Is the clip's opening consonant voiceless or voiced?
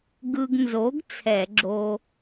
voiced